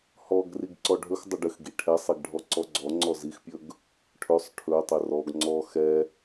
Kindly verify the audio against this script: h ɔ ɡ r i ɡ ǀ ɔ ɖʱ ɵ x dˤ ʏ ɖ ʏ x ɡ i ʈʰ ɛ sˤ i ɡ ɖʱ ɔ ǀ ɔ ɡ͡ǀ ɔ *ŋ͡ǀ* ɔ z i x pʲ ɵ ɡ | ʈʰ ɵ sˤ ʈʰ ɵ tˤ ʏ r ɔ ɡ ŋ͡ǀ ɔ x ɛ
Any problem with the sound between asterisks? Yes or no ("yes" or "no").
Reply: no